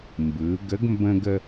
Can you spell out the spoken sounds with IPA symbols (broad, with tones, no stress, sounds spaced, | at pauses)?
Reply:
m b ɯ˩˧ ɡ ə˧˥ ɡ m b ə̃˧ ɡ ə˧